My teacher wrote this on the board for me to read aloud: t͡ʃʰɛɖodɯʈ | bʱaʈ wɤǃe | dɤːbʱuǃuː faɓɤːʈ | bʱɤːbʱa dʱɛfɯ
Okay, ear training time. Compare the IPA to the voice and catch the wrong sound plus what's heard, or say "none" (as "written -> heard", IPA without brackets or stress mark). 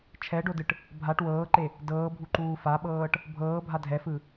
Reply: ɤ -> ɤː